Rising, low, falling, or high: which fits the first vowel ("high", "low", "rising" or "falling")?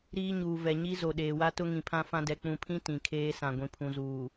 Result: high